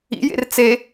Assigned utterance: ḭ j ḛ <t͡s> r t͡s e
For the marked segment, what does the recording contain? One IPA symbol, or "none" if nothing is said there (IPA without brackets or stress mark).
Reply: none